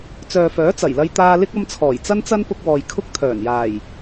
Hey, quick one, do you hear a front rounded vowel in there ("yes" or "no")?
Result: yes